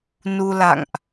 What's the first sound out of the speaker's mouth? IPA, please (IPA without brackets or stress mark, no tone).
n